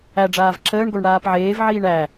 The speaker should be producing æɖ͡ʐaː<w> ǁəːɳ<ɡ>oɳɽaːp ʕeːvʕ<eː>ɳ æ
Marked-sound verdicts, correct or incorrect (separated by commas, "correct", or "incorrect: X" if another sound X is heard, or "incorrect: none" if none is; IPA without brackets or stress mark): incorrect: v, correct, incorrect: iː